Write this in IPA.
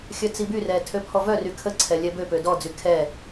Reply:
xʲœt͡sibyrɛ tʰøpʰɔvœry kʰəǀʰɛ lʲɛbøpø dɔd͡zy kʰɛ

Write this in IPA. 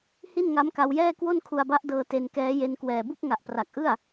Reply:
hi˥˩nŋa˦˥mka˧wjɛː˥˩ kwo˥˩nkʰu˧a̯ba˦˥ʔdɤː˧ te˧nkɛː˦˥je˧nkwɛː˨˩ bu˥˩k̚ŋa˨˩ʔpra˨˩k̚ ʔɯ˥˩a̯

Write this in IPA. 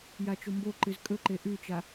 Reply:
jat͡ʃomboǃɨz kʼɵǃe ʔʉt͡ʃa

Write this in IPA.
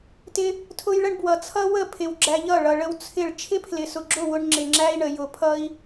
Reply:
tɪ˦ | tʰʊ˦jɭə˦ɳbwʌ˨ t͡sʰʌ˦wə˦˨ pʰɪ˨wɡ͡ǁæ˧ʎʌ˦˨ ɭʌ˨ɭə˧w t͡sʰɪ˦˨ɭ t͡ʃʰɪ˦pʰlɪ˨sʊ˨ɡ͡ǁʊ˦˨ wʊ˧ɳ ŋ͡ǁɪ˨ŋ͡ǁæ˦i̯ɳə˨ jʊ˨pʰʌ˦i̯

